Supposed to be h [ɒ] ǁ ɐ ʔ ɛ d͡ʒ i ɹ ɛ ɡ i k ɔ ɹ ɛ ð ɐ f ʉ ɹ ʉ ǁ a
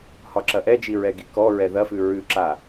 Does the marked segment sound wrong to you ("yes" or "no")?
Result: no